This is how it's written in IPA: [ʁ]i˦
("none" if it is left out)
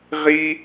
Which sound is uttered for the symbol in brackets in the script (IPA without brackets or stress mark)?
ʁ